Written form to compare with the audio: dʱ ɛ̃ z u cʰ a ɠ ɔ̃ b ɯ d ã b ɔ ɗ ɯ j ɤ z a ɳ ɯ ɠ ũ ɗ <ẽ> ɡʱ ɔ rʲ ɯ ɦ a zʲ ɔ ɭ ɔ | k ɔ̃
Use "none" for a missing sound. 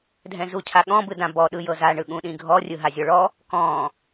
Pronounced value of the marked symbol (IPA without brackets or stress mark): ĩ